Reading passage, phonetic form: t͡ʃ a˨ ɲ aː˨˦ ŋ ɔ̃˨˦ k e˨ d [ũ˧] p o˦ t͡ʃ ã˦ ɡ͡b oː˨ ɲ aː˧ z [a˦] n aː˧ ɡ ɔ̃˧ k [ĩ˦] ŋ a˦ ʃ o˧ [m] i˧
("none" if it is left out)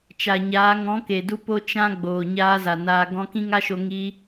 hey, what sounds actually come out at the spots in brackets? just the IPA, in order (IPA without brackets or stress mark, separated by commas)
u˧, a˨, ĩ˦, ŋ